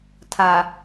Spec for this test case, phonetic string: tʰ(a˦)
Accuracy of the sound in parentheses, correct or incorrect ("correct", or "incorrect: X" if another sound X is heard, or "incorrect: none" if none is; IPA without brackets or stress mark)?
incorrect: a˨